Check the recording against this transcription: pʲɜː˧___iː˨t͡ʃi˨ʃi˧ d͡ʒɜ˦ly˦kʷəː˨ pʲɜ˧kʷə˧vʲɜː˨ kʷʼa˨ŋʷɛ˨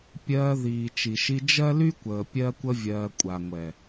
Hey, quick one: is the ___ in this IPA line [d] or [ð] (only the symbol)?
ð